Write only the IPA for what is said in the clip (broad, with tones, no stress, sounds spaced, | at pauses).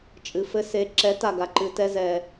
t͡ʃʼ ɨ˩ f ɘ˧ s e˩˥ ǁ ɛ˩˥ t a˩ ɡ a˩ ǃ ɨ˩ t ɛ˧ z ɛ˩